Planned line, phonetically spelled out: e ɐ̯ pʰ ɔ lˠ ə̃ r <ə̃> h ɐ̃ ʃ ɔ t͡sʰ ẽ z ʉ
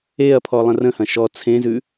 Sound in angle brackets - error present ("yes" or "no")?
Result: no